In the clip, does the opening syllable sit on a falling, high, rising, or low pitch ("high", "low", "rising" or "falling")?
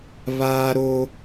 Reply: high